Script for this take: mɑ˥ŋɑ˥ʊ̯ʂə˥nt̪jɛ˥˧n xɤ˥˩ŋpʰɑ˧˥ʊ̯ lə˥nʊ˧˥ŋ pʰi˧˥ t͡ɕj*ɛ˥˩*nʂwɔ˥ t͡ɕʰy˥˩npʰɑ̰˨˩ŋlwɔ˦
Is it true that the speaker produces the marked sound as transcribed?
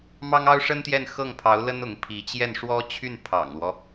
yes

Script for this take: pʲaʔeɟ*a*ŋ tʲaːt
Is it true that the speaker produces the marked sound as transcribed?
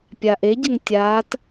no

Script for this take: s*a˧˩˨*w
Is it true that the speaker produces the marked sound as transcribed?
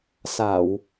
yes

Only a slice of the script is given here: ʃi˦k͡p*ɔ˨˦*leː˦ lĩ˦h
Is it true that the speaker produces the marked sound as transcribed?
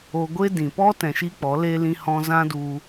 yes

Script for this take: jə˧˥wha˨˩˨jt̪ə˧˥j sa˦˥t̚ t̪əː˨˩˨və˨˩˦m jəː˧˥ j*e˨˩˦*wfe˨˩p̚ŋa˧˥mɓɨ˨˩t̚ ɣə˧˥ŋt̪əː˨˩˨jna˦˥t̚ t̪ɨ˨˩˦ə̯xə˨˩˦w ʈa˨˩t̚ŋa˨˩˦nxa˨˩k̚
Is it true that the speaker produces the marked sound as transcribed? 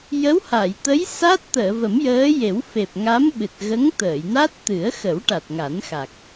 yes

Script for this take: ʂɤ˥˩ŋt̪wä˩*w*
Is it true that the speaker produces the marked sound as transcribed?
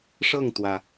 no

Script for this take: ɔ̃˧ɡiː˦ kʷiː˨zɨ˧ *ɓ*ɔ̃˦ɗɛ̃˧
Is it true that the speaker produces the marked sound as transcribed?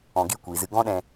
no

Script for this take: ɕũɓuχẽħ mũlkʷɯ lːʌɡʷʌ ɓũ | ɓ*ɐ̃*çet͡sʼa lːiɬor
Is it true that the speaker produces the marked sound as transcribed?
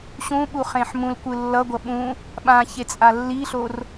no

